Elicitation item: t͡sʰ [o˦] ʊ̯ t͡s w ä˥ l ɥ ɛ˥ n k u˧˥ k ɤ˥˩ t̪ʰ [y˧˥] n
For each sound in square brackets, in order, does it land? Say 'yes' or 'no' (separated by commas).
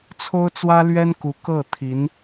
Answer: no, no